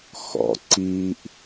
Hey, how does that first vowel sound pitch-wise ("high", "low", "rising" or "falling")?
low